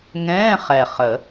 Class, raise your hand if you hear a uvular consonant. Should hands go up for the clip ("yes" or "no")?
yes